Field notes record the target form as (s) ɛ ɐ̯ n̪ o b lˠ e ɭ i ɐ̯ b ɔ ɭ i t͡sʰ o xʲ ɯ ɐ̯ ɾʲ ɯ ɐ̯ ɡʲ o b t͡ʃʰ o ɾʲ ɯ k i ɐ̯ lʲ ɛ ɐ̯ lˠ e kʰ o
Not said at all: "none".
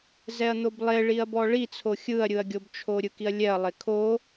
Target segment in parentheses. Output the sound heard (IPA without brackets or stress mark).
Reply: z